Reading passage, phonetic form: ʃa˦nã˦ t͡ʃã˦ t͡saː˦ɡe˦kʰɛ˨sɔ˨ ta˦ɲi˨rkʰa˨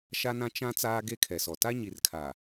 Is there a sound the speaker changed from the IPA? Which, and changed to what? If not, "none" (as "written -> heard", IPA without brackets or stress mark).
none